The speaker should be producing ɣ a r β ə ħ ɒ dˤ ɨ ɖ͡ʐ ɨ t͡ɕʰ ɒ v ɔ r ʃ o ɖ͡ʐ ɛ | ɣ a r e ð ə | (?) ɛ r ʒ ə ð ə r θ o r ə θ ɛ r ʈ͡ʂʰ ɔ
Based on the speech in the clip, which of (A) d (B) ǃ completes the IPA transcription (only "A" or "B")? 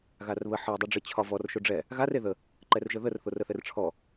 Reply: B